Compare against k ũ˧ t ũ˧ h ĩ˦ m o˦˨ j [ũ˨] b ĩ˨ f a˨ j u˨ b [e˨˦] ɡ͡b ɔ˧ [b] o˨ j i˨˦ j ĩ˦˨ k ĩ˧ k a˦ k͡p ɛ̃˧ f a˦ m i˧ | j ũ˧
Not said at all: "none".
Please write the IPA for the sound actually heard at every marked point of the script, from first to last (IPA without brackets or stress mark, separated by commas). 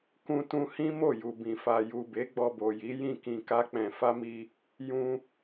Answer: u˨, e˨˦, b